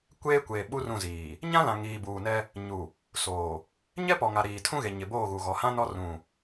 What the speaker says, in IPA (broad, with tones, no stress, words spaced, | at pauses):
kʷeː˦kʷe˨ ɓu˦rũ˦˨ziː˨ | ɲã˦lã˨ ŋiː˨buː˨nɛ˦ | ɲu˨ | soː˨ | ɲɛ˦pɔ˨ŋa˨ ɾiː˨tʰũ˦ɣe˨ ɲɪ˨boː˦˨ɣu˨ɣɔ˨˦ hã˦nɔ˦ rũ˦˨